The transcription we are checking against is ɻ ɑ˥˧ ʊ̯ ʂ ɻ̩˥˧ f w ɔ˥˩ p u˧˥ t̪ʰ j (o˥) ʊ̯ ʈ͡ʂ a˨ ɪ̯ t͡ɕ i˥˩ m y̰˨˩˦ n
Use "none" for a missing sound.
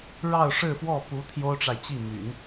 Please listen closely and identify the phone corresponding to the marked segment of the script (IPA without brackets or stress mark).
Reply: o˥